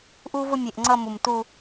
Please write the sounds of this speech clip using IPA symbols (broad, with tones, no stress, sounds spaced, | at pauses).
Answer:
ʔ u˦ v ʊ˦ mʲ e˨ ʔ ŋ͡ǀ ʌ˦ m u˨ m t u˦